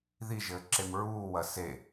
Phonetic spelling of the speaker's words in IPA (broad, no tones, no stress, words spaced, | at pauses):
ðiʒɘːǁem ɹuːwɐ se